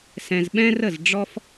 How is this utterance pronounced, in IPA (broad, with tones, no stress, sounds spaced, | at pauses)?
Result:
s ɛ̃˧ z ɓ ɛ̃˥ r ə˥˨ z ɖ͡ʐ ɔ˥ f